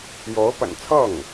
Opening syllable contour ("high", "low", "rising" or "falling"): rising